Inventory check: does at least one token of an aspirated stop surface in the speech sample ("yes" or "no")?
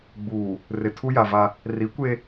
yes